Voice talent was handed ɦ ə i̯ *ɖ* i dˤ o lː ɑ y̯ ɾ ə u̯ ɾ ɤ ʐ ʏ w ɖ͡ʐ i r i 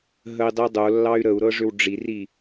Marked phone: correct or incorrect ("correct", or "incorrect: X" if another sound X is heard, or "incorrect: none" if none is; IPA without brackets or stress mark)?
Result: incorrect: dˤ